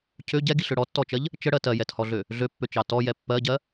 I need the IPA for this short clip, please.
cʰø ɟɛɡiɬø ɽɔtːɔt͡ʃɜʎ | t͡ʃəɽɜ tɜjɛthɔɮø | ɮøpːøt͡ʃɑ tɔjɛ pːɜɟɜ

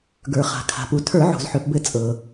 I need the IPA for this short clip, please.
ɡə˞˩χa̤˩ kʰa̤˩pu˩ tʰə˞˧˩˧ʕo̤˩zħø˩pbɘ˧˩˧ t͡sʼɤ˩

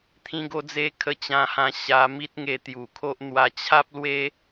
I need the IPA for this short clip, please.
t̪ʰĩ˧ɡo˧d͡ze˧kʰə˧ t͡ɕã˧hã˧ ɕa˧ mi˦t̚ŋe˧t̪ju˨˩kʰo˦ʔ n̪wa˧t͡ɕʰa˦p̚lwe˦

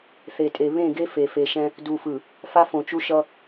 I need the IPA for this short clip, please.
θe˨tʼe˨ βẽ˦˨ɡe˦ fe˨fe˨ʃɛ̃˦ | du˨fɯ˨ | fa˦ fõ˨t͡ʃu˦ʃʌ˦

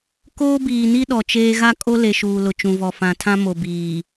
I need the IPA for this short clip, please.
koː˦biː˨ni˦ ɗɔ˨t͡ʃeː˦ ɣa˦kʼo˦le˨ ʃuː˨lʊ˨ t͡ʃũ˨vɔ˨ fã˨tʰã˦mo˨biː˨

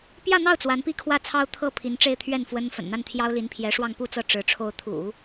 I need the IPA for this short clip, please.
pjä˥˧n̪ɑ˥˩ʊ̯ t͡swa˧˥npi˥˧kʰwä˥˩t͡sʰɑ˥ʊ̯ t̪ʰɤ˥˩ pʰi˧˥nʈ͡ʂe˥˧ɪ̯t̪ʰɥɛ˥˩n fwə˥n fə̰˨˩nn̪a˥˩n t̪ʰjɑ˥ʊ̯li˧˥npʰjɛ˧˥ ʂwɑ˥˧ŋpu˥˧t͡sɤ˥˩ ʈ͡ʂɻ̩˧˥ ʈ͡ʂʰo˧˥ʊ̯t̪ʰṵ˨˩˦

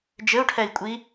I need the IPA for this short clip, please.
d͡ʒɘu̯ʈʰɛi̯kʷʼi

